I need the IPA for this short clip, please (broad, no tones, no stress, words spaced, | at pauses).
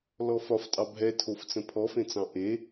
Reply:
lɔfɒf tʼɑbʱɛtʰoft͡sə̃ pʰɔfẽt͡sɑ̃ ʔe